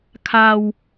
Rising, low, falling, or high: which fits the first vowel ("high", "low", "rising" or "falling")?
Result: low